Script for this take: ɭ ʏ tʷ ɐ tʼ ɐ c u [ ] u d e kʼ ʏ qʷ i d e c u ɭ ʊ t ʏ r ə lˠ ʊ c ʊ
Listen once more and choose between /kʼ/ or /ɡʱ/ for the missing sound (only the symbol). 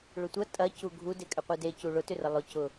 ɡʱ